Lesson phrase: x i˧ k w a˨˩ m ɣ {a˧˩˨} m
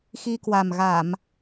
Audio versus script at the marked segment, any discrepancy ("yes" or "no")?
no